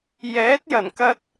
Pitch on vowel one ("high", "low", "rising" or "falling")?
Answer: rising